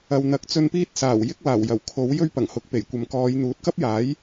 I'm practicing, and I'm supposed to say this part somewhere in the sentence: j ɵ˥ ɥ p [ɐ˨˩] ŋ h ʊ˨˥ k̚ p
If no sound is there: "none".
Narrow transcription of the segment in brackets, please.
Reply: ɐ˨˩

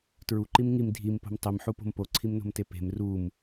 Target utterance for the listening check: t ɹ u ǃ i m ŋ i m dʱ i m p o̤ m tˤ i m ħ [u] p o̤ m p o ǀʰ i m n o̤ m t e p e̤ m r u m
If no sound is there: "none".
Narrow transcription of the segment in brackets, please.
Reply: u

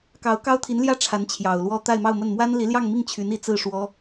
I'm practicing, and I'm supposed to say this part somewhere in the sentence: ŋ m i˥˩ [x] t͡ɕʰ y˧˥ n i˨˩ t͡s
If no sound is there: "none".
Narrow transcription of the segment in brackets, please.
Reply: ŋ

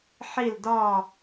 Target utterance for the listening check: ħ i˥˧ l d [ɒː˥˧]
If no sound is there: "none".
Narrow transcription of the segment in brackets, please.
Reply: ɒː˥˧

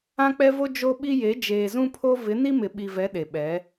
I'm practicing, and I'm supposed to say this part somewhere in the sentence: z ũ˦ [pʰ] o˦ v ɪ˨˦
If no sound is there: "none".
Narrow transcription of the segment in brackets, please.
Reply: pʰ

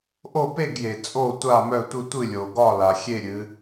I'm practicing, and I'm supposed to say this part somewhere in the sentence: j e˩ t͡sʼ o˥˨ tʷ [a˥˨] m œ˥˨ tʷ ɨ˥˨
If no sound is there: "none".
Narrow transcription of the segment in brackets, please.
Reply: a˥˨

